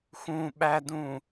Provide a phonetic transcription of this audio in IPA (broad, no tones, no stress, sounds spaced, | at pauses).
x ũ ɓ æ d ũ